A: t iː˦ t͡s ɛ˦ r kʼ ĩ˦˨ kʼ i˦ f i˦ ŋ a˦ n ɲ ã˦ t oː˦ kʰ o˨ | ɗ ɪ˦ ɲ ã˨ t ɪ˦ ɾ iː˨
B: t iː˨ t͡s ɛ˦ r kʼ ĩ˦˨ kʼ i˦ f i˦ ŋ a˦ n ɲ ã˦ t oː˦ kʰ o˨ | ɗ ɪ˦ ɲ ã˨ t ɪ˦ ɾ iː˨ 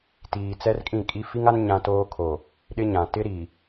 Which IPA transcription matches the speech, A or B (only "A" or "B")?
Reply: B